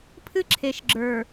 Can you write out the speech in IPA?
pʰ ɨ˦ ǁʰ e˨ ʃ ɡ͡ǁ ə˞˨

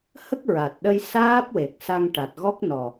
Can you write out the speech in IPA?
h ə˦˥ k̚ ɹ a˨˩ t̚ ɗ ə˧ j s aː˦˥ p̚ w e˨˩ k̚ s a˧ ŋ ʈ a˨˩ t̚ ɣ ɔ˦˥ k̚ n ɔ˨˩

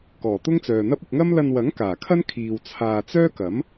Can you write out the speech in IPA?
k ɔː˨˩ t̪ ʊ˥ ŋ t͡s œː˨ n̪ ɐ˥ p̚ ʊ˧ k̚ ŋ ɐ˥ m l ɐ˧ n w ɐ˨˥ ŋ k aː˨˩ kʰ ɐ˥ n kʰ iː˨ w t͡sʰ aː˨ t͡s œː˥ k ɐ˨˥ m

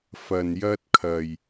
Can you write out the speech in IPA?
f ɐ˨ n j ɐ˧ t̚ kʰ ɐ˨ j

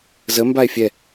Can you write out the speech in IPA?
z ə m b a e̯ fʲ ɛ

